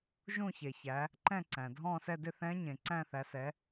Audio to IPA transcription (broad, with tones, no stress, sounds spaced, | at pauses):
ʒ ũ˦˨ ç e˩ ç æ˩˧ | ǃ ɛ̃˦˨ ǀ æ̃˩ dʱ ɔ̃˦˨ s ɛ˦˨ d ɪ˦˨ θ ɛ̃˧˥ ɲ ẽ˩ ǀ æ̃˦˨ θ æ˩˧ s ɛ˩˧